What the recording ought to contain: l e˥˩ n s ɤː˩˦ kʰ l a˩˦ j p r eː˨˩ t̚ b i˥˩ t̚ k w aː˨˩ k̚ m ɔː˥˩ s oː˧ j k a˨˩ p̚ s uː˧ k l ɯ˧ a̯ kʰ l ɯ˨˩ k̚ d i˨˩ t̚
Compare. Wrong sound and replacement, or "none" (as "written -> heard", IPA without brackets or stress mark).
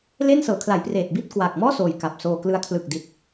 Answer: uː˧ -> oː˧